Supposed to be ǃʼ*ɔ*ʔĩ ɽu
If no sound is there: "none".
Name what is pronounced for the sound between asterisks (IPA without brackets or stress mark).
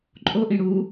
o